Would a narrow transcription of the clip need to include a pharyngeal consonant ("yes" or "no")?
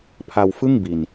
no